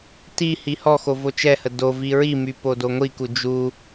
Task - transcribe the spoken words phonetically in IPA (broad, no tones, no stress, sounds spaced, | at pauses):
t i h i h ɔ x o v o t͡ʃ ɛ h ə d o v i ɹ i m y p o d o ŋʷ i k u d͡ʒ u